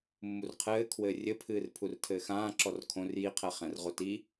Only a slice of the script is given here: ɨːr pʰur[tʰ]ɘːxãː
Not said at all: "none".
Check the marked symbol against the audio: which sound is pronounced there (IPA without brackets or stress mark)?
tʰ